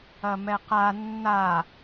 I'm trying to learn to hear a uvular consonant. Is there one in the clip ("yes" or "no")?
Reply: yes